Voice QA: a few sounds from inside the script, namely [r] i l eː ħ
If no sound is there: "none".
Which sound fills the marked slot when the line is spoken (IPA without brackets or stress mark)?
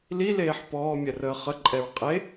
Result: l